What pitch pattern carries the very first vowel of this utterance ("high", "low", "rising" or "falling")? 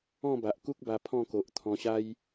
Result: falling